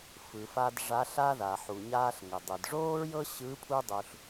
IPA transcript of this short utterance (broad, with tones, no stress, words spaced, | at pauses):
fɯ˩fa˧d ʐa˧˥ɬa˥ ða˩ħu˩ɲaː˧ɬ ŋɘ˩dˤɯ˩dʐoː˥ɹjɤ˥ ɕɯ˧˥ pʰu˥dˤu˧ɬ